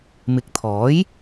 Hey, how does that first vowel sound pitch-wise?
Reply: rising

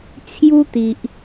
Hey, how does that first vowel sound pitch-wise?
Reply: high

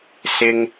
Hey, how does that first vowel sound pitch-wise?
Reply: high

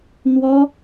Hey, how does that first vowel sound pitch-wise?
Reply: high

